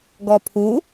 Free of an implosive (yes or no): yes